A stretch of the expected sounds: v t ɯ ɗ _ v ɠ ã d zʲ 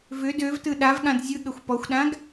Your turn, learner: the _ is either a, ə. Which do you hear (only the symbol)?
a